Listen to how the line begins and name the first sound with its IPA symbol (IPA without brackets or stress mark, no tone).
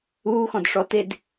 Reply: uː